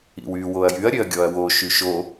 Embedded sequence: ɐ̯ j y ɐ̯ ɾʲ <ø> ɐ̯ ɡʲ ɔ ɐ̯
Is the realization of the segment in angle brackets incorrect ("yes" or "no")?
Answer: no